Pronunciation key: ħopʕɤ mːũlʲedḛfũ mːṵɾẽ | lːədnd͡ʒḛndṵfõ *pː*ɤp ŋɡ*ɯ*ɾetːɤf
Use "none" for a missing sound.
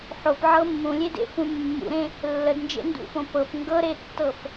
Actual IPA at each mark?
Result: p, ɤ

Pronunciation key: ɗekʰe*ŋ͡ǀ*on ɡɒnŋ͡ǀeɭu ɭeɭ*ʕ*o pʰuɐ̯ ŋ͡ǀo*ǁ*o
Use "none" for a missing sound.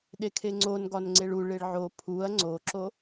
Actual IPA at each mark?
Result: ŋ͡ǀ, ʕ, ǁ

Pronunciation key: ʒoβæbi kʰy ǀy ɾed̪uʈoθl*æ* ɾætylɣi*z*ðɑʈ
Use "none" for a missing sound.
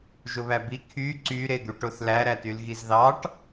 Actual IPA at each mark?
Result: æ, z

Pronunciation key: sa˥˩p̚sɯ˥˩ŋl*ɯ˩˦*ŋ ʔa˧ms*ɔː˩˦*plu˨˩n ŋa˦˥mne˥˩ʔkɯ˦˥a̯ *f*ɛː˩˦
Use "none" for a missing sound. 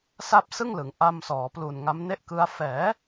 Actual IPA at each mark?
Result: ɯ˩˦, ɔː˩˦, f

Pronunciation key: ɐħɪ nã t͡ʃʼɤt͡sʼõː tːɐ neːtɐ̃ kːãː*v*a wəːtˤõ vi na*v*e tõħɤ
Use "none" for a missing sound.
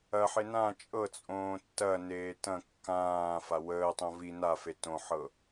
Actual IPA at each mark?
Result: f, f

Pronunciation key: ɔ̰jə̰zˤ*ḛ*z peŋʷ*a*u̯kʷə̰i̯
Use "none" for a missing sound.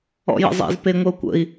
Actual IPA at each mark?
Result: ḛ, ə

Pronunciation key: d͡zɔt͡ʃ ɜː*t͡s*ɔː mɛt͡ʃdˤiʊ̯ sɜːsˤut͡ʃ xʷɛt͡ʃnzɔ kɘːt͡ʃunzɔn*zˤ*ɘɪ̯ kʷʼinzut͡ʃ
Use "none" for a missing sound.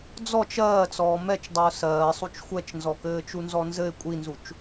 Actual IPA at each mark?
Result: t͡s, z

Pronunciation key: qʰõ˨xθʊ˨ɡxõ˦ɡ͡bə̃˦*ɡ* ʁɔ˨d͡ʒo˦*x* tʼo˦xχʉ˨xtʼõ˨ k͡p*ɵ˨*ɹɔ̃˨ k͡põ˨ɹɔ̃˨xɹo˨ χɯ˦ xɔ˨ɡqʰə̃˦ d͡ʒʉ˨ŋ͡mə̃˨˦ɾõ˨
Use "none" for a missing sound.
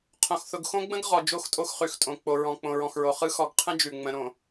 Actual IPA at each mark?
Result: ɡ, x, o˨

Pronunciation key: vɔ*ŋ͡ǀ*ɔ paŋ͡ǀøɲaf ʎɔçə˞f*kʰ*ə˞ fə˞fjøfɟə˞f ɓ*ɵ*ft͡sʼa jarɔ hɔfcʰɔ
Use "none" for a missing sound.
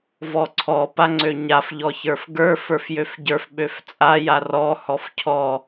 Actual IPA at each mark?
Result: ǀʰ, ɡ, ø

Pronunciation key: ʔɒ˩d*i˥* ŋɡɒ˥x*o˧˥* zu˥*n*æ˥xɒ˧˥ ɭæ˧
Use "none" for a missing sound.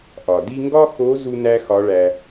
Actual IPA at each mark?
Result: i˥, o˧˥, n

